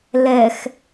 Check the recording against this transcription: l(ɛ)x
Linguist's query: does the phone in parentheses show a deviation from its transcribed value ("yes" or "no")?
no